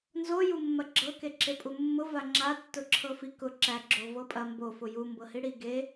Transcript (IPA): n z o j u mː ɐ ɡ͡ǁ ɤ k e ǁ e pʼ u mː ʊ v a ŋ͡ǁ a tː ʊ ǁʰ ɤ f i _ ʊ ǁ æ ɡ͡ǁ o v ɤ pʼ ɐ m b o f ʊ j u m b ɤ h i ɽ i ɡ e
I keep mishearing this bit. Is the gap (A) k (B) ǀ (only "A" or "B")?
A